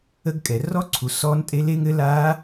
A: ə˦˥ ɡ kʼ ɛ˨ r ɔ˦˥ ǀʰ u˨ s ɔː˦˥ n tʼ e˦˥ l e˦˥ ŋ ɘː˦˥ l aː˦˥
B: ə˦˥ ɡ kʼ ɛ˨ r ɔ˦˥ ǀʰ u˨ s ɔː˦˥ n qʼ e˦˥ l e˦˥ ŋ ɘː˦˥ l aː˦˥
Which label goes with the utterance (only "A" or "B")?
A